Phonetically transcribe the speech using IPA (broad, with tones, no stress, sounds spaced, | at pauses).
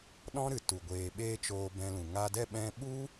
ɗ ɔ̃˦ ɾ ɨ˨ t u˨ ɡʷ eː˨ ɓ eː˧ t͡ʃ oː˧ b ɛ̃˧ l ũ˨ ŋ a˧ d ɛ˦˨ ɓ ɛ̃˧ ɓ u˦